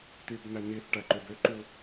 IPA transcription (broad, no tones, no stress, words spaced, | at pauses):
tybnæ niθʈæǃøb øǃu